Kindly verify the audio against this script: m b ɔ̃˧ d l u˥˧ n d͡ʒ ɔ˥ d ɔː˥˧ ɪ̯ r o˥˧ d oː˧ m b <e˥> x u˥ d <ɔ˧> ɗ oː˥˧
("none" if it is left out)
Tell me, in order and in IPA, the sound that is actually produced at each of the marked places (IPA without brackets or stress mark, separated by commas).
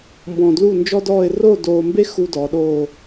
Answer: e˥, ɔ˩˧